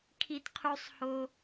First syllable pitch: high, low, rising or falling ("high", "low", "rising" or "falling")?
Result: high